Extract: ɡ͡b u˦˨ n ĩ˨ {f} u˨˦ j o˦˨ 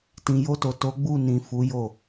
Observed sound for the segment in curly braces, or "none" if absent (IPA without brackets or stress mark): f